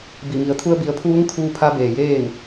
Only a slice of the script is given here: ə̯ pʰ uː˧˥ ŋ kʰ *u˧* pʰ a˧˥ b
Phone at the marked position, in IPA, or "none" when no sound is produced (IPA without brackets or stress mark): uː˧